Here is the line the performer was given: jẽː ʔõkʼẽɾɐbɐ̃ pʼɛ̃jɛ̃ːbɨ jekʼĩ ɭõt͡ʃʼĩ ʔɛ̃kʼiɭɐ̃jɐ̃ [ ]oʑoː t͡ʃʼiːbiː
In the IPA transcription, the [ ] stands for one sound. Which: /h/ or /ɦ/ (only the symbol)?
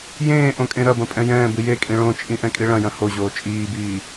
h